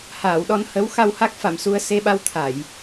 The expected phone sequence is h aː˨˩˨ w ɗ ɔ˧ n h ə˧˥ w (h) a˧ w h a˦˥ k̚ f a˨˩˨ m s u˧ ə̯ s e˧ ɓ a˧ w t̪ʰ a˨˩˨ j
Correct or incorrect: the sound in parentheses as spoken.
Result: incorrect: x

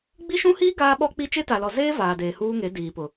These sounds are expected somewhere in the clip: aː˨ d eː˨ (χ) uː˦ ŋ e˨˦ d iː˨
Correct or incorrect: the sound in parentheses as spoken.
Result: incorrect: h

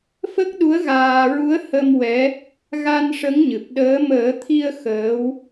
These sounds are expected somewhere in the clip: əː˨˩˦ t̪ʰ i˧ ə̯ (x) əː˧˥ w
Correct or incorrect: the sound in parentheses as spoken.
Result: correct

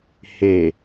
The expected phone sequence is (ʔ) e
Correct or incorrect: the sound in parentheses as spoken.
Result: incorrect: h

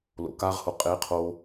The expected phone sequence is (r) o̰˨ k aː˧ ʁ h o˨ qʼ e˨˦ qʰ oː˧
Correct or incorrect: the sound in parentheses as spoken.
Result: incorrect: l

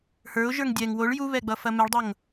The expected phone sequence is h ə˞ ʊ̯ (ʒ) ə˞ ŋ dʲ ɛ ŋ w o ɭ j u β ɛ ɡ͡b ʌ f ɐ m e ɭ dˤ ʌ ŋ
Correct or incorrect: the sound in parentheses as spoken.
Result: correct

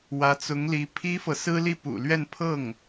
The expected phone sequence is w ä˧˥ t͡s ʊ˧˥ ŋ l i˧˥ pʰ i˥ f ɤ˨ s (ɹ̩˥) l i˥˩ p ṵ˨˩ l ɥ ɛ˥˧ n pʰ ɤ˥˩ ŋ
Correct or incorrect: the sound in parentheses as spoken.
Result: correct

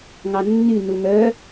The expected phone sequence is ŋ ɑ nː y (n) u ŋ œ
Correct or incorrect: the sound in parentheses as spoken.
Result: correct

